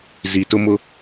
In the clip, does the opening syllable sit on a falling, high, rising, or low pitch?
low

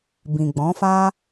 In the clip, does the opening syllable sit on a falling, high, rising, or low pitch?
low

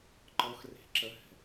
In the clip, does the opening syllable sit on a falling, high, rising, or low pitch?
rising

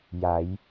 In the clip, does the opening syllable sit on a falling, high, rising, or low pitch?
rising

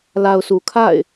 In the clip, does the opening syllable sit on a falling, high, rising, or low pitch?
low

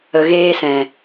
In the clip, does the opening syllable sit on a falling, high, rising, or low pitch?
low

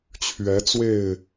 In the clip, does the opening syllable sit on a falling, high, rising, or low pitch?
rising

